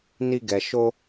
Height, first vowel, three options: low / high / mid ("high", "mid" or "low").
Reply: high